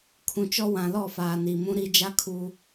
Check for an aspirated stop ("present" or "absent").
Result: present